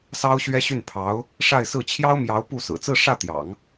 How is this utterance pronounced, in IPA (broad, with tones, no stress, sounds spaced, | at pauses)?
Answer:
s ɑ˥ ʊ̯ ɕ ɥ ɛ˥ ɕ y˥˩ n pʰ ɑ˧˥ ʊ̯ | ʂ a˥˧ ɪ̯ s ɹ̩˥˩ t͡ɕʰ j ɑ˥ ʊ̯ m j ɑ˧˥ ʊ̯ p u˥˩ s ɹ̩˨˩ t͡s ɹ̩˥˧ ʂ ä˥˩ t̪ j ɑ̰˨˩˦ ŋ